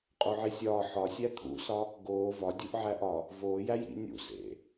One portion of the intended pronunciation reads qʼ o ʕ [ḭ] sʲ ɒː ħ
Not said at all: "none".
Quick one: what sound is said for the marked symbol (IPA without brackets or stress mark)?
i